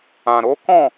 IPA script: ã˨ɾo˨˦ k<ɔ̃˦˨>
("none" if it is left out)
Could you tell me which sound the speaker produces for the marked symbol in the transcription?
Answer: ɔ̃˦˨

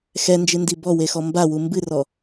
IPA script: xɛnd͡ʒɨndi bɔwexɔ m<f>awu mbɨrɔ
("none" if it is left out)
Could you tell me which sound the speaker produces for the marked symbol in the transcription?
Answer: b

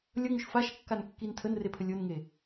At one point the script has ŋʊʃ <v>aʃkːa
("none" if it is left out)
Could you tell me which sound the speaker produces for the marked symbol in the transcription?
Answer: f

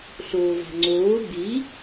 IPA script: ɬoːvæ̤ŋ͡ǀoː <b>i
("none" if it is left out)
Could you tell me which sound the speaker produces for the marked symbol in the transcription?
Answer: b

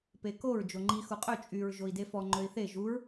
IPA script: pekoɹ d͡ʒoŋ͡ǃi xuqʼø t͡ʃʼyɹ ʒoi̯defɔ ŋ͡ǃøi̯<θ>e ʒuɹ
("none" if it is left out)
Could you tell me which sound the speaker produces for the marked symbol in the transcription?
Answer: θ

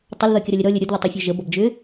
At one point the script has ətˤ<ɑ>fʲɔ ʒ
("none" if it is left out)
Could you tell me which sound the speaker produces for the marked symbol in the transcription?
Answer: ʌ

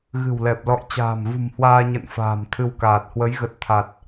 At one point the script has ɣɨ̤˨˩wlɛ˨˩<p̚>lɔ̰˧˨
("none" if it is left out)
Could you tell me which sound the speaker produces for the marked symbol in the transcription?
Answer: p̚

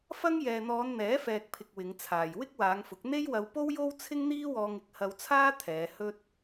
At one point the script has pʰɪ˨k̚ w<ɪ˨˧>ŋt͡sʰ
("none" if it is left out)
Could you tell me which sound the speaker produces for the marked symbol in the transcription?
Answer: ɪ˨˧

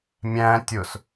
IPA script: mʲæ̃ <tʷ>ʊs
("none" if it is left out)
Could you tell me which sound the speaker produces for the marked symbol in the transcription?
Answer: tʲ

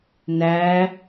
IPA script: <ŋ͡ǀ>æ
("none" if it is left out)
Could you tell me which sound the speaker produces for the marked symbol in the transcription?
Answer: n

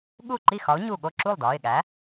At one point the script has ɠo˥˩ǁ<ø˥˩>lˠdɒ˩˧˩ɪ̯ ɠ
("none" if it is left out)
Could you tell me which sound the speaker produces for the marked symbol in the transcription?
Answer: u˥˩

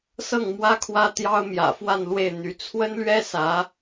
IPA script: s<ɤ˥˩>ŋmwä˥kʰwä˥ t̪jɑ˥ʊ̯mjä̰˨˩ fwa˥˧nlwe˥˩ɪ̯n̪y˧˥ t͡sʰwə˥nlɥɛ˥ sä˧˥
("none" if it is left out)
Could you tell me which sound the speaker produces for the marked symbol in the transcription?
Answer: ɤ˥˩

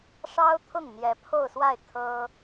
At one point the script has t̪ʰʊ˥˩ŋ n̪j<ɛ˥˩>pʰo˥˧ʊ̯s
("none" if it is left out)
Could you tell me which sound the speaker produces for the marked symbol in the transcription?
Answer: ɛ˧˥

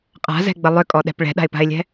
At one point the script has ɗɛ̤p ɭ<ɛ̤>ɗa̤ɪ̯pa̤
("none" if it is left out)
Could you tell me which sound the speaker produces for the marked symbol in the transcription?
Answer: ɛ̤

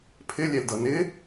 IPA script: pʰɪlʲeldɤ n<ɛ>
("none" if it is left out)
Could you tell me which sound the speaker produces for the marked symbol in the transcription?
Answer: ɪ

